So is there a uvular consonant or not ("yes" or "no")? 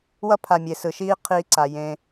yes